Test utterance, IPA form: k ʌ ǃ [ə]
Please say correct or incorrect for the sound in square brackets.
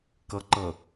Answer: incorrect